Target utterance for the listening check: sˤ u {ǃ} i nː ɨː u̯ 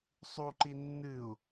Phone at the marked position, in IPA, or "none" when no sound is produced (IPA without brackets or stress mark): ǃ